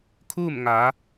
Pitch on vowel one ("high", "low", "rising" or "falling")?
falling